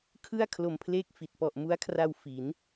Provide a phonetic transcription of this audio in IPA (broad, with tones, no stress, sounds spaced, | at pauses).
kʰ ɯ˥˩ a̯ kʰ l o˧ m pʰ l eː˥˩ k̚ f i˨˩ t̚ p ɔ˨˩ ʔ m u˦˥ a̯ kʰ r a˧ w f i˩˦ n